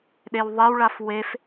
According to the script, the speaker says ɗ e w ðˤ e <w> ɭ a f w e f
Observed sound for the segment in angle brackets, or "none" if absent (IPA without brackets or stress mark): w